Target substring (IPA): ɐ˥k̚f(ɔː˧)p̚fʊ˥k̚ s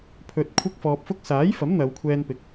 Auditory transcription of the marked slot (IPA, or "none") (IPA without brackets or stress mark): ɔː˧